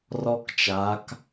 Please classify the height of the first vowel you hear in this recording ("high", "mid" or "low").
mid